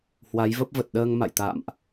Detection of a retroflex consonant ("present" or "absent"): absent